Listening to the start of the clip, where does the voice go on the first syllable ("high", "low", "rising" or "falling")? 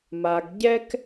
low